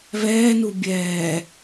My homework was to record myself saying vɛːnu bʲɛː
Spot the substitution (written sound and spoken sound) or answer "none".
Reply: none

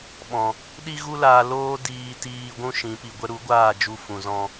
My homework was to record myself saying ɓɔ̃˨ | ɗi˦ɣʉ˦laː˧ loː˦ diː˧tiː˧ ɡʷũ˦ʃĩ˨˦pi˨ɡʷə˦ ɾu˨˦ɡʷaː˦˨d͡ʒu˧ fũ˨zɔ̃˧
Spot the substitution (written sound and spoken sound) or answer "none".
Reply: ʉ˦ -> u˦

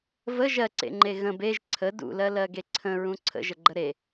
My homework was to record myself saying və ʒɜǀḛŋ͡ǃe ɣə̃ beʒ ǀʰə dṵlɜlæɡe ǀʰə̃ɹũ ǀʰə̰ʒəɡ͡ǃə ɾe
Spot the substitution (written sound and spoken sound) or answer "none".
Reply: æ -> ɜ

